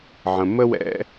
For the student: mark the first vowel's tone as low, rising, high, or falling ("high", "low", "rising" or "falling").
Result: low